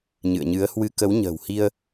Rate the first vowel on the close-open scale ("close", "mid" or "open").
close